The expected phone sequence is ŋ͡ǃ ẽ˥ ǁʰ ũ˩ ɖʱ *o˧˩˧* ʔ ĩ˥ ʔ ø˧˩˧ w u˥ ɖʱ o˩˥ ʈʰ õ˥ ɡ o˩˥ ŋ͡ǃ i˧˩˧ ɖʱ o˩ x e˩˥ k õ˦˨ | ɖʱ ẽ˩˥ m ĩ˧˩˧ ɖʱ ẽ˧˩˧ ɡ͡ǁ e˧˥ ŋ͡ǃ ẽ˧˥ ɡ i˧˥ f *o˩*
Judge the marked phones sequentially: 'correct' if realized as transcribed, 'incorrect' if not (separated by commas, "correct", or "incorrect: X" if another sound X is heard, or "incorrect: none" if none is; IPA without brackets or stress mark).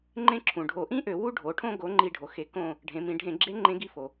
correct, correct